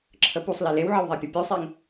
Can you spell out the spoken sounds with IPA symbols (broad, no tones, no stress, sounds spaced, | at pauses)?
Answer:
ǁʰ ə p u sˤ l i l e w ʕ ə w ðˤ ɛ pʲ ə pʲ u sˤ e ŋ